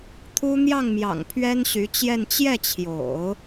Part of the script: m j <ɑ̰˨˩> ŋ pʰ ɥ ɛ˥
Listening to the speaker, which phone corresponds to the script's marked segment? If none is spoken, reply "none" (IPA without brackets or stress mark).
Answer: ɑ̰˨˩